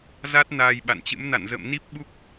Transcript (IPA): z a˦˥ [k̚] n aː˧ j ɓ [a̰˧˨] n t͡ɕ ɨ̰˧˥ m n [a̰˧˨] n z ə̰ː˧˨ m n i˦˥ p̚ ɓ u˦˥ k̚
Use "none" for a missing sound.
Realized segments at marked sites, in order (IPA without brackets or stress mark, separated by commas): t̚, a̰˧˨, a̰˧˨